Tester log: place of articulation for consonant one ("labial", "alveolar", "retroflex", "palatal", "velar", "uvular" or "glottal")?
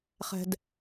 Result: uvular